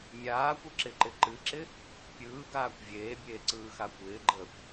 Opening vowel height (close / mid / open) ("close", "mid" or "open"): open